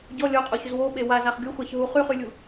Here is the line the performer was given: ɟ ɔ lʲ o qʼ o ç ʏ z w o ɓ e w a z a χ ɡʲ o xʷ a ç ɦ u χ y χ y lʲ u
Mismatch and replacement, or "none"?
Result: none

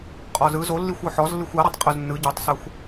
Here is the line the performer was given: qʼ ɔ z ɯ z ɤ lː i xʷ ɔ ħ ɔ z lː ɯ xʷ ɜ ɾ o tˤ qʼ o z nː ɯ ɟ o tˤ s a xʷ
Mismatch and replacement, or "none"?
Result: ɤ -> o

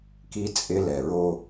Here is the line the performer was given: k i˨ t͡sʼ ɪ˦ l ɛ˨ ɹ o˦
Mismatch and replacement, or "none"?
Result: i˨ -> i˦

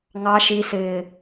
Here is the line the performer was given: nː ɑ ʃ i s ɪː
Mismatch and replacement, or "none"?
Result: nː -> ŋ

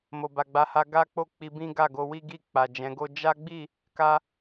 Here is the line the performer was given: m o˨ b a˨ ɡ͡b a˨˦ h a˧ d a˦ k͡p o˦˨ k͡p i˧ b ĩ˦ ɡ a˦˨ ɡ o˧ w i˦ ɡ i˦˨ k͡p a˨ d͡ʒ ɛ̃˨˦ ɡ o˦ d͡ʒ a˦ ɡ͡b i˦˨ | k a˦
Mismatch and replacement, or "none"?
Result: d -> ɡ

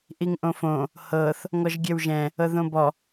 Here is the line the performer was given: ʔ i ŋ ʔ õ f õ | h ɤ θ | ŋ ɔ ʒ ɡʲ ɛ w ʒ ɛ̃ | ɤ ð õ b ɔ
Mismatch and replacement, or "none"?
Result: none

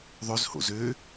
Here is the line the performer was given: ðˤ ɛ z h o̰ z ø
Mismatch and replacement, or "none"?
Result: ɛ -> ø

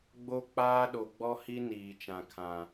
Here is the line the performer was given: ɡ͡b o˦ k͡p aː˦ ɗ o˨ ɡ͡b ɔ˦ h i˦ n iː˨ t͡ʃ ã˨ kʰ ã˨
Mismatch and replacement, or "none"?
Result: none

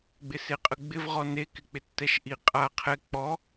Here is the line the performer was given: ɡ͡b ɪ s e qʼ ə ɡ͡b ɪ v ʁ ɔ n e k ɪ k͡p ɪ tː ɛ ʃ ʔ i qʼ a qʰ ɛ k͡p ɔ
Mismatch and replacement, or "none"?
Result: none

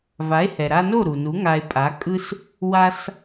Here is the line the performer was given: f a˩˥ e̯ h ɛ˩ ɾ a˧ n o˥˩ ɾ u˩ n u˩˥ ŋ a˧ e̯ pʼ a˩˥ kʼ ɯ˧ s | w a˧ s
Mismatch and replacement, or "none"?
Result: f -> v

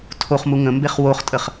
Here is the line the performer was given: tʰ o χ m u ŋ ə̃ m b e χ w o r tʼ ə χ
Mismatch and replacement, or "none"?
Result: r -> χ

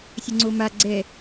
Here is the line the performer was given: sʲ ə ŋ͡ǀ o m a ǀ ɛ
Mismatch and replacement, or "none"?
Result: ǀ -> ɡ͡ǀ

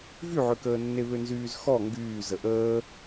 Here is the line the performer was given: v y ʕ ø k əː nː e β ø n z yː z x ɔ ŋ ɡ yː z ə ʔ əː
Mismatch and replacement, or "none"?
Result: none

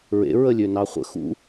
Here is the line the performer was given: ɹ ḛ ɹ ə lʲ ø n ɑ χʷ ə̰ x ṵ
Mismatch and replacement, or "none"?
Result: none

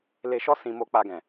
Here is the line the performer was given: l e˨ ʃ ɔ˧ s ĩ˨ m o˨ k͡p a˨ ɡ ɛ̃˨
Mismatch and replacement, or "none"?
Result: none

